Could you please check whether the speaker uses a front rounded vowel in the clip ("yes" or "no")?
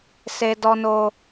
no